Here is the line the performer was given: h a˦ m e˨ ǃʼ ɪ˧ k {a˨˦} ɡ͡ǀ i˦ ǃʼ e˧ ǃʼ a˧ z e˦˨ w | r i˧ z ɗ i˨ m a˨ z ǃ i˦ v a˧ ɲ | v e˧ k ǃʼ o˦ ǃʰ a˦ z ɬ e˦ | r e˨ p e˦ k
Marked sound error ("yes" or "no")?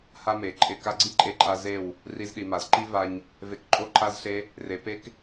yes